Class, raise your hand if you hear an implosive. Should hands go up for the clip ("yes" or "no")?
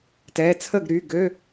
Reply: no